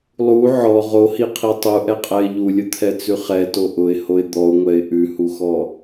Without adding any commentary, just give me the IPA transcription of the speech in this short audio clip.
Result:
lˠ u ʕ ɔ ʁ o h i qʰ i tˤ u ʔ ɛ qʼ ɛ ɪ̯ ʎ u lʲ ʊ t̪ʰ ɛ t͡s ʉ χ ɛ t o ʔ ʊ ɪ̯ h o ɪ̯ d̪ ɔ ʊ̯ ŋʷ ɛ ɪ̯ ʔ ʉ h u x ɔ

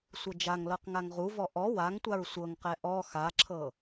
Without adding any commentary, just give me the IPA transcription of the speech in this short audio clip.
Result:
sʷ ɤ d͡ʒ a ŋ l ɤ q ŋ a ŋ ʁ u v ɔ ʔ ɔ w a ŋ tʷ a ɹ sʷ ɤ ŋ q ɛ ʔ ɔ x a ǁʰ ɤ

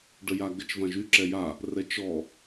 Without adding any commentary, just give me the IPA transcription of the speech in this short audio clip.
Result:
ɖ ə j a ɡ ə t͡ʃ v ã ʒ y ǁ ɛ j a | r ɛ t͡ʃ ɔ

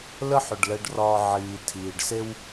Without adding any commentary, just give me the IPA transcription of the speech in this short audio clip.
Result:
l ə˥ ħ ʏ˩ ɖ l ɛ˧ ɖ r ɒː˧ ʕ iː˩ tʰ iː˩ ɖ s e˥ w

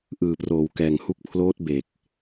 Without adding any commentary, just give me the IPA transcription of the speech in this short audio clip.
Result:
ʔ ɯː˨˩ p r oː˨˩ w k ɛː˨˩ ŋ h u˦˥ k̚ pʰ l oː˦˥ t̚ b e˨˩ k̚

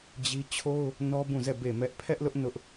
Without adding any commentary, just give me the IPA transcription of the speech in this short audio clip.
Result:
d͡ʑ i˦ t͡ɕʰ o˦ ʊ̯ | n ɔ˦ b ũ˦˨ z ɛ˦˨ b e˦˨ m ɛ˦ ʔ pʰ ɛ˦ ʔ l ʊ˦ ʔ n ʊ˦ ʔ

